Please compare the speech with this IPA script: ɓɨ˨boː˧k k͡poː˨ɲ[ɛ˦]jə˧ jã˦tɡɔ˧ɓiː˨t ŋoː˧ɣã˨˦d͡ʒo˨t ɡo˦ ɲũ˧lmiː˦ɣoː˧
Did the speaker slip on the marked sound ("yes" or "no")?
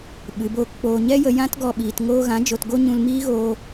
no